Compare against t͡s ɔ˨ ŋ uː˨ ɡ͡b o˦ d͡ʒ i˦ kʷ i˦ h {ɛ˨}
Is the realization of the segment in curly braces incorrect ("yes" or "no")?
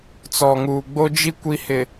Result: yes